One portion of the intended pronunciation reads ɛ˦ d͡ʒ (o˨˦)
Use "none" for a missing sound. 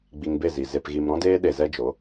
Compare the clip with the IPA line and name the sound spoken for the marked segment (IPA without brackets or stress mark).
o˨˦